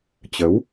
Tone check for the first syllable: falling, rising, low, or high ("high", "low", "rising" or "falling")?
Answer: rising